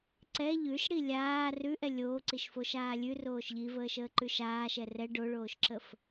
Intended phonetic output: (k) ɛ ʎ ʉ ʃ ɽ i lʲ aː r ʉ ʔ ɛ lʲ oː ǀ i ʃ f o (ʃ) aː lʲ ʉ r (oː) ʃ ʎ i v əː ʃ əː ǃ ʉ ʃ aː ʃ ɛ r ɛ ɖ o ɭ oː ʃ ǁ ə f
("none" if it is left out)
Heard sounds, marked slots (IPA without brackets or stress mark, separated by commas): ǀ, ʃ, oː